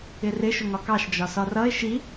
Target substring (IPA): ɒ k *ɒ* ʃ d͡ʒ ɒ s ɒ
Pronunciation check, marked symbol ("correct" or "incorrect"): incorrect